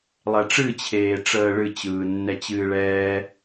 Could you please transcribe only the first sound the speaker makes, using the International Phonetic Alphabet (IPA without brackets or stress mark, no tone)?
lˠ